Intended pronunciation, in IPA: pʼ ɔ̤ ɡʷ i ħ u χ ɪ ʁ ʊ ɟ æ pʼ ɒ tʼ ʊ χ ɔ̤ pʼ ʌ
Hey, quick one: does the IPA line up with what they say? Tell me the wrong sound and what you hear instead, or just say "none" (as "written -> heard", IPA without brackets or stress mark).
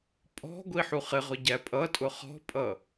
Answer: ɒ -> ʌ